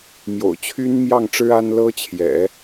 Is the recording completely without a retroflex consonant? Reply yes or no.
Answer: no